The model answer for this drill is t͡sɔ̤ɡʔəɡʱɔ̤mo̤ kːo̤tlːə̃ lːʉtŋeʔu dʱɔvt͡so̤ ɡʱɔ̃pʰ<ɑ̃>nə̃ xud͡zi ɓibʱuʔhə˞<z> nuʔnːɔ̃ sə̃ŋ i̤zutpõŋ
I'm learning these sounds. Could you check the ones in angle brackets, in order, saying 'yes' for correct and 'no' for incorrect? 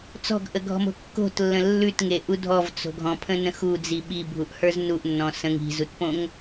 no, yes

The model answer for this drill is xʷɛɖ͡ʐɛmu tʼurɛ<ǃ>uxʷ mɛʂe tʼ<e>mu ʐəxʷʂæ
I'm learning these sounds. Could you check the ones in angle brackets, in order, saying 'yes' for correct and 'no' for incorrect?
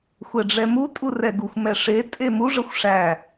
no, yes

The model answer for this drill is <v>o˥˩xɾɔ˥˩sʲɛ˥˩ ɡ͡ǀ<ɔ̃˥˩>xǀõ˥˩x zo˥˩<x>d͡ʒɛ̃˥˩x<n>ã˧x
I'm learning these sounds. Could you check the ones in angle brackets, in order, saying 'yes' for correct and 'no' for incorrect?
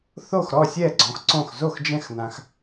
no, no, yes, yes

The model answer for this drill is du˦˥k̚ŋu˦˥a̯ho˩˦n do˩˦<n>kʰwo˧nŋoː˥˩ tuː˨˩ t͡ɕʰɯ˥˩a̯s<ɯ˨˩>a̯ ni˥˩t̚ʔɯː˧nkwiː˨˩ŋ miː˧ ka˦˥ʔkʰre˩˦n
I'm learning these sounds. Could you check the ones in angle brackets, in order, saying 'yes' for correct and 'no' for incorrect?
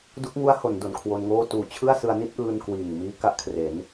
yes, no

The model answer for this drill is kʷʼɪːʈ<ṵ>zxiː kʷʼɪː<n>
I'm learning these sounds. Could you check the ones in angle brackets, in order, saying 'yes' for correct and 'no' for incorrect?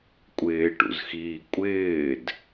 yes, no

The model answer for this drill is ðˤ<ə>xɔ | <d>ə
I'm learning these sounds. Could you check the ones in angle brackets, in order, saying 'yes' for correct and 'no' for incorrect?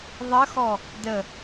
yes, yes

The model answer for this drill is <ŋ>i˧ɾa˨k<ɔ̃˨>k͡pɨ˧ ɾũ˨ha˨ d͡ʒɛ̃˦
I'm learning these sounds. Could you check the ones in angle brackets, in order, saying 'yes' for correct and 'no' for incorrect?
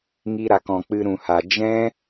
yes, yes

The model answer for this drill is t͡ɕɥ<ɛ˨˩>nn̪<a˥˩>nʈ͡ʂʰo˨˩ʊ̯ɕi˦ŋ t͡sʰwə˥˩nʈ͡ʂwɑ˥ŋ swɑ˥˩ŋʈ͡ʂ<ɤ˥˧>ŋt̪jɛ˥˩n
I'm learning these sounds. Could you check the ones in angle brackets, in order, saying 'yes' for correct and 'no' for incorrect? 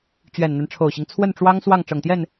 yes, no, no

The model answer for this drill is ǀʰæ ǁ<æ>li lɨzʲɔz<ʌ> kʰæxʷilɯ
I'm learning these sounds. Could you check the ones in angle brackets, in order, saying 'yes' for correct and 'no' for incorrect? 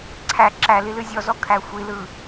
yes, no

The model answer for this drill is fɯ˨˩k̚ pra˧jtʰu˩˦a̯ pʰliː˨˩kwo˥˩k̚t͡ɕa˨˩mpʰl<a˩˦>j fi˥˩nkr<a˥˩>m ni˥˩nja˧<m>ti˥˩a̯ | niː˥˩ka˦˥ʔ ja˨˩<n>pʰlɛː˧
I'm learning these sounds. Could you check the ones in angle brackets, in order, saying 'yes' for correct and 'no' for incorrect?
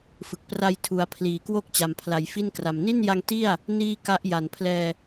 yes, no, no, yes

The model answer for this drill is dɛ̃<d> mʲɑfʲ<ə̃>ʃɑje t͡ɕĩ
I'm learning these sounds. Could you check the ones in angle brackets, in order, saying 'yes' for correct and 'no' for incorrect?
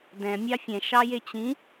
no, no

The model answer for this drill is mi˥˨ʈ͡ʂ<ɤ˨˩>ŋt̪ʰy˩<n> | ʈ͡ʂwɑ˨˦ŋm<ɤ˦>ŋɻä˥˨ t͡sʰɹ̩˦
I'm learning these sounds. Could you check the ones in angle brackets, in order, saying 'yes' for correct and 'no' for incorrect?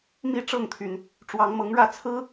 no, yes, no

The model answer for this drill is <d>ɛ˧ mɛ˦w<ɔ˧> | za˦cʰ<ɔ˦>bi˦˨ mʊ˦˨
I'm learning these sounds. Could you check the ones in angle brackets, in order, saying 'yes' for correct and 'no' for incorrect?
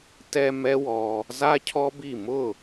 no, yes, yes

